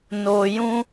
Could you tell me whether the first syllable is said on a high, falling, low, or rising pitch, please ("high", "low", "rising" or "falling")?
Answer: low